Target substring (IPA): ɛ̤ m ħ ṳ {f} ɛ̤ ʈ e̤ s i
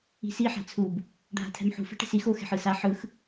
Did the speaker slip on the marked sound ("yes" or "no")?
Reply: no